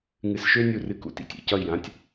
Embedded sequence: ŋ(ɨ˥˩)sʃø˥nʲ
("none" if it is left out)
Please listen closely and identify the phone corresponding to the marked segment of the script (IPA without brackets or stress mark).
ɨ˧